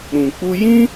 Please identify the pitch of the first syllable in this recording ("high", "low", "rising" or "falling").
low